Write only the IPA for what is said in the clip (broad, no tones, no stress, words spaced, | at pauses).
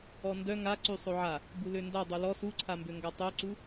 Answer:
ɔndœ ŋa ǀysˤoʕa | bulønda dˤulɔ suǀʰambøŋɡa tˤøǀu